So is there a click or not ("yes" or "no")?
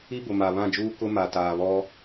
no